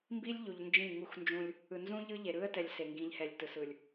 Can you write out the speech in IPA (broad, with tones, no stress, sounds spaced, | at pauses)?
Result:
m b i˦ lʲ ʎ u˨ ʎ n d͡ʒ ĩ˦˨ ŋ u˦ x n d͡ʒ ũ˦ lʲ | ɯ˨ n z ũ˦ ʎ ɯ˦ ʎ e˨ ɾ ɯ˦ ə̯ t ɛ˨ lʲ s e˨ ŋ ɡ ĩ˨˦ ʎ h ɛ˨ lʲ t ɯ˨ s ɯ˨ lʲ